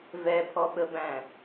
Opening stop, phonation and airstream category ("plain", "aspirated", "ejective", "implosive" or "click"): aspirated